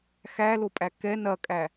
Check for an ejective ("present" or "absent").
present